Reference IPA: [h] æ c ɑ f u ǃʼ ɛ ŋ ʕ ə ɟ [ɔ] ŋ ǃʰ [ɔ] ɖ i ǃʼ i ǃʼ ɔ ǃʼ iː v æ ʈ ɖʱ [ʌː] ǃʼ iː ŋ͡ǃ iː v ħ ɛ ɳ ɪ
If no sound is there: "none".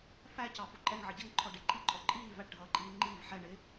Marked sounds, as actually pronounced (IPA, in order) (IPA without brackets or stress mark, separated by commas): f, ʌ, ɔ, ʌː